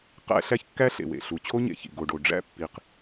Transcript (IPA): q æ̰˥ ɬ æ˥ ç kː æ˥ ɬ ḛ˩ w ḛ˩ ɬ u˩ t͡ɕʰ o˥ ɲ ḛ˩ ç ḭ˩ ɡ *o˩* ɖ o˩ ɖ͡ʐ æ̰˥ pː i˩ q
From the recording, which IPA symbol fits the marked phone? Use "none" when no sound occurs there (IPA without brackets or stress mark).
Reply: o˩